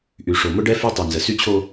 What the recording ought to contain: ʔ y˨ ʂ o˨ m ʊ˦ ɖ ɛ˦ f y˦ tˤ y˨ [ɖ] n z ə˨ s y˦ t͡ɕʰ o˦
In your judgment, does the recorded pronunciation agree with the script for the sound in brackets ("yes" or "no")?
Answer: no